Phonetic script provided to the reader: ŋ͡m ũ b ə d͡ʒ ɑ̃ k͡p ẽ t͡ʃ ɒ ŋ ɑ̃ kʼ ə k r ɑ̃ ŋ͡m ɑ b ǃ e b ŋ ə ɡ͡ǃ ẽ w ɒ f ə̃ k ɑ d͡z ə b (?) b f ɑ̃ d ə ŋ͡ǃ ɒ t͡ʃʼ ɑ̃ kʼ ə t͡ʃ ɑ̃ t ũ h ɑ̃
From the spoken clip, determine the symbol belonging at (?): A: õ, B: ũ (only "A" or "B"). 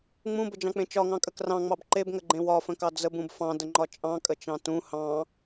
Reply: B